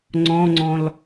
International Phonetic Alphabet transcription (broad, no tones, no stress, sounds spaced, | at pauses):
ŋ͡ǀ ɔ̃ ŋ͡ǀ ɔ̃ l